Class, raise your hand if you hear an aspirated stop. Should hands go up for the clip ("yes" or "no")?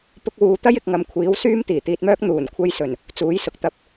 yes